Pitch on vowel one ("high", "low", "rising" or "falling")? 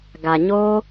low